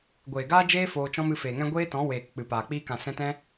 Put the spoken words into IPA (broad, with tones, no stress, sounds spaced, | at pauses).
ɡʷ eː˨ ɡ aː˦ d͡ʒ eː˦ f oː˧ t͡ʃ ɔ̃˦ m ɨ˧ f eː˨ ŋ ɛ̃˦ ɡʷ eː˦ t ɔ̃˨˦ w eː˨ k k͡p ɨ˨ p aː˨ k͡p iː˧ k ã˨ s ɛ̃˧ t ɛ̃˦